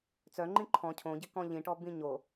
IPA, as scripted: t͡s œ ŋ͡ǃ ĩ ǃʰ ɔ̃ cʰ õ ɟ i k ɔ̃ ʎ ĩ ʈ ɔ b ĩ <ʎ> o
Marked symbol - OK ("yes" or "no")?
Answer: no